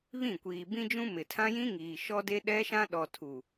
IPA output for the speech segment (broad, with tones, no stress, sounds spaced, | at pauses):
β ĩ˦˨ kʷ iː˨ b ĩ˦ d͡ʒ ũ˦ m ɪ˨ tʰ ã˦ j ĩ˦ ŋ iː˨ ʃ ɔ˦ d e˦ ɗ ɛ˦ ʃ ã˦ ɗ ɔ˨ tʰ u˨